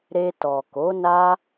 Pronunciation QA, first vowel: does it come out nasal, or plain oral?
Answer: oral